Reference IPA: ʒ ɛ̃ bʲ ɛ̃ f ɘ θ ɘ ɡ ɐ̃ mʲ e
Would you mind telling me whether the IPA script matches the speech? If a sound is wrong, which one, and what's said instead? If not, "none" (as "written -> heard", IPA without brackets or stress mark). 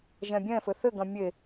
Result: none